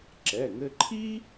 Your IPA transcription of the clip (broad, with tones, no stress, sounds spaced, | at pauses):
ǁ ɛ˩˧˩ ŋ ɘ˧ ǃʰ i˥